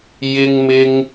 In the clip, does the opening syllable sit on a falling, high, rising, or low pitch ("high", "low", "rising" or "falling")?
high